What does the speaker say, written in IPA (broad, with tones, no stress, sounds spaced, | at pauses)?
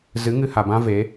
z ɨ˨˦ ŋ ɨ˧ h a˨ b ã˦ v e˨˦